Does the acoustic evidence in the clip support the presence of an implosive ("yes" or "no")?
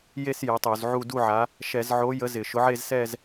no